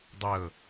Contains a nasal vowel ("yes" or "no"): no